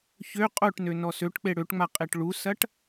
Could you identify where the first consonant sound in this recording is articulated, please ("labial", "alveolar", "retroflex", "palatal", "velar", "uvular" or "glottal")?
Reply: palatal